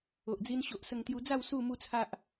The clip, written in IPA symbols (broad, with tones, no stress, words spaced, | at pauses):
o˨ʔd͡zi˧n ɕo˨ʔ sə˧ŋt̪ju˧d͡za˥˧w su˥˧mu˥˧t͡sʰa˦ʔ